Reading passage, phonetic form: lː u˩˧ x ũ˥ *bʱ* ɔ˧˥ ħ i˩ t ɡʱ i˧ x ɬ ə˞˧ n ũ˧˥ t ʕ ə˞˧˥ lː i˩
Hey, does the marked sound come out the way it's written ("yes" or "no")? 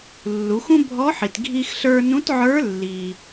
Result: yes